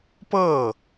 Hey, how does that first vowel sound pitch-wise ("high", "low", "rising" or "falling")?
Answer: falling